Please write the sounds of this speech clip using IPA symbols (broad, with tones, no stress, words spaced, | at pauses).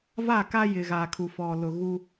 va˦˨ka˦ jɪ˨ ɣaː˨kʰu˨ fɔ˨lʊ˨ ɣu˦